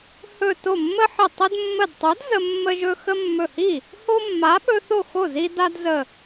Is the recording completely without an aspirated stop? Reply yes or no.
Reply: yes